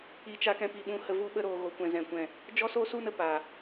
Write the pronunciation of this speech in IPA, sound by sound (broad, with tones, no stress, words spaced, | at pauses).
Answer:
i˧t͡ʃa˧ kɛ̃˧pi˨ɓũ˧ hə˧vu˦ ɓə˧ɾoː˨ ɣo˨kʷɛ̃˨ zɛ̃˨kʷɛ̃˦˨ | d͡ʒɔ˦soː˦su˦nə˨ paː˨